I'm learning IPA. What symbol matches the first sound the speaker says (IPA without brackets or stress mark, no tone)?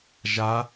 ʒ